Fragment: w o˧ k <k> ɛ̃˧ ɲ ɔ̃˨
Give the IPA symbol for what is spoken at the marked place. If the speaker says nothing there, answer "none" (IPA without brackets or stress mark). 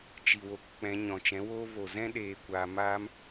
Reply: k͡p